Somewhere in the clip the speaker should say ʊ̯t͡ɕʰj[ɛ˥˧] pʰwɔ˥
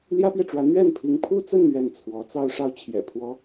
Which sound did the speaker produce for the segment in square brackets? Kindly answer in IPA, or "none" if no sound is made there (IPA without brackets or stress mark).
ɛ̰˨˩